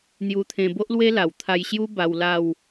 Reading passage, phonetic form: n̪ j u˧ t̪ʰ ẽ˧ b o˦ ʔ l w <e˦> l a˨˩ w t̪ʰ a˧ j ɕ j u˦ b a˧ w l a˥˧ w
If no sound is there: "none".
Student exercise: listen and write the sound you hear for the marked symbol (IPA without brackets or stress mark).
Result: e˦